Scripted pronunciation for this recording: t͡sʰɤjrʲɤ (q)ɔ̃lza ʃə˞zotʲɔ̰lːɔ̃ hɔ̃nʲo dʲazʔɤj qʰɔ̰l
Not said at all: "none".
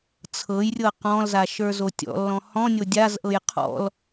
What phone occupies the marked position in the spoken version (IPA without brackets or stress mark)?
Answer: q